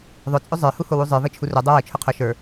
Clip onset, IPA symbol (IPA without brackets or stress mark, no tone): ðˤ